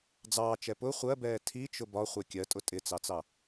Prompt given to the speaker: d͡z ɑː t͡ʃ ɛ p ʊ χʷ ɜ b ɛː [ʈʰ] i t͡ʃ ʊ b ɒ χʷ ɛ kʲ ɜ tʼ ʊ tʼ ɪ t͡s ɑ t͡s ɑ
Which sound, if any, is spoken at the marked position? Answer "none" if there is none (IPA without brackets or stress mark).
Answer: tʰ